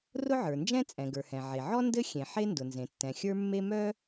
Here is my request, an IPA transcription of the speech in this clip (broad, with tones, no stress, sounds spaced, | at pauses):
r ʊ˥ ʕ ə˞˩ n d͡ʒ ɛ̃˥ t͡sʼ ɛ̃˩ ɡ ə˞˩ h ɛ̃˩ ʕ e˩ ʕ ɔ˥ n d ɘ˥ xʲ ẽ˩ ħ e˥ n d ʊ˩ n z ẽ˩ tː ɛ̃˩ xʲ ə˞˥ mː e˥ m œ˥